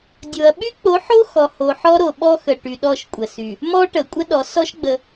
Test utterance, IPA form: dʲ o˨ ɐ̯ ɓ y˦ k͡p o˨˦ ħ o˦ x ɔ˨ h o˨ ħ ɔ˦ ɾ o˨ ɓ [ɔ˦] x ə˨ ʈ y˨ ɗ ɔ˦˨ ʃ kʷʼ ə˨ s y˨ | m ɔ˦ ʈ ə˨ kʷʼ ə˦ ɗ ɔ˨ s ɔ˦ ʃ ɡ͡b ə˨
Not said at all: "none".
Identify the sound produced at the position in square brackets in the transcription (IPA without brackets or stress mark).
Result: ɔ˦